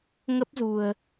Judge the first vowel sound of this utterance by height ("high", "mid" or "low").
mid